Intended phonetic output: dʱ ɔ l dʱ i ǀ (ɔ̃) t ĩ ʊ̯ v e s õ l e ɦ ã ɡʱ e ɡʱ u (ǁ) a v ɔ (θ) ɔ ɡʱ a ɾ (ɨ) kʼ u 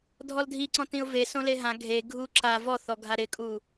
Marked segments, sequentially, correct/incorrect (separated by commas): correct, correct, correct, incorrect